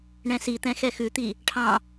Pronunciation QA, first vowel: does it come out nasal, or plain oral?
nasal